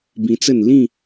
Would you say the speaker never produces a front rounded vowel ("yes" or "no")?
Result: yes